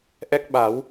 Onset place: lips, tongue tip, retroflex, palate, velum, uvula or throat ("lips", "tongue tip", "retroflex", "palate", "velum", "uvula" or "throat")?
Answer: throat